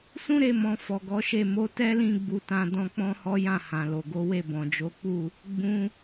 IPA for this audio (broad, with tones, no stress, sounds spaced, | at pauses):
s ũ˦ ɾ e˧ m ɔ̃˨ f ɔ˨ ɡ ɔ˨˦ ʃ e˦˨ m o˨˦ t ɛ˦ l ĩ˦˨ ɡ͡b u˧ t ã˧ d ɔ̃˧ k͡p ɔ̃˦ h ɔ˦ j ã˦˨ h ã˨ l o˨ ɡ o˨˦ w e˦˨ b ɔ̃˨ d͡ʒ o˨˦ k͡p u˦˨ | ɡ͡b ũ˧